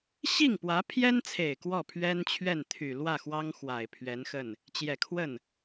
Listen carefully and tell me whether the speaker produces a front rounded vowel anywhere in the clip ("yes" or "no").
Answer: yes